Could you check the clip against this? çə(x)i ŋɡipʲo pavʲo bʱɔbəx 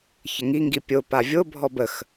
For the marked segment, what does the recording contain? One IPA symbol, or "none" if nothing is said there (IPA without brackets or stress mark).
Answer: ŋ